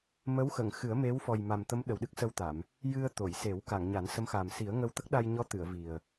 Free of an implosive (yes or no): no